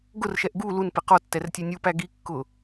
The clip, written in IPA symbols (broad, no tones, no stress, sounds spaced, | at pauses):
ɡ ʊ r ʃ ɛ ʔ ɡ u l u n p ɪ q ɔ tː ɛ r tʲ æ nʲ u p æ ɡ i kː ʊ